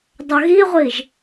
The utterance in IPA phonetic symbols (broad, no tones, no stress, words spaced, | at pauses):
dˤœɣiʁʷiʒ